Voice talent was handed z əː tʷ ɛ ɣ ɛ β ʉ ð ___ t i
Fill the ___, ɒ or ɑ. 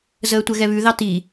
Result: ɑ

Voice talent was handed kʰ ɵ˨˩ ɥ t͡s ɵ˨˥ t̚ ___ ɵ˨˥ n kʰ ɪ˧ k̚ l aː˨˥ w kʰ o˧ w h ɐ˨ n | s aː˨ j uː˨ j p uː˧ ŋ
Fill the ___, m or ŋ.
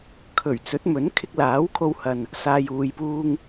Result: m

